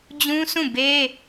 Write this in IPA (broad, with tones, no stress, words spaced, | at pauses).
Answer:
d͡ʑũ˦sʰũ˦˨ be˦